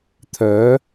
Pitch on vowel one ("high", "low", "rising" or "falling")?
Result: rising